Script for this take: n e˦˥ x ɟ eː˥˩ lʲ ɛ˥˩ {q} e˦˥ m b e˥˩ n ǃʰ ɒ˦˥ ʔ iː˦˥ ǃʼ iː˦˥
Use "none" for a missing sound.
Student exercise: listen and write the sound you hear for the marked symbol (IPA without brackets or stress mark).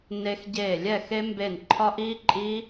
x